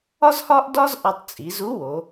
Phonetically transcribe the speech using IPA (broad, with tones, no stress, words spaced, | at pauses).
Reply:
ɒ˥zhɒ˥ʔdɒ˥z ʔɒ˧tˤt͡sʼi˩˧zu˧˥wo˩˧